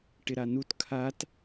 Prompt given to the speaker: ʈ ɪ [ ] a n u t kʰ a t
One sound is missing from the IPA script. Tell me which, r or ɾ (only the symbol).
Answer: ɾ